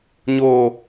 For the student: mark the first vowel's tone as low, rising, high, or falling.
low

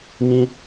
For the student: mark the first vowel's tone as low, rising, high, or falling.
high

